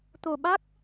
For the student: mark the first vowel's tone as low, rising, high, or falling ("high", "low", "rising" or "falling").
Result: low